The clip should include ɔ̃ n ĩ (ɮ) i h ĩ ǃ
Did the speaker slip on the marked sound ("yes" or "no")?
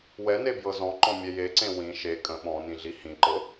no